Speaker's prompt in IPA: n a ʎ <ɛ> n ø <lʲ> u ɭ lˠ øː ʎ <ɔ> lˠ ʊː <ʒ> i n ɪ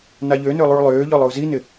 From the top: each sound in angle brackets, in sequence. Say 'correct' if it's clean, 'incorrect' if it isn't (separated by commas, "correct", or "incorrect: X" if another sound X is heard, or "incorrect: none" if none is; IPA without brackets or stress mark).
incorrect: ø, incorrect: lˠ, correct, incorrect: z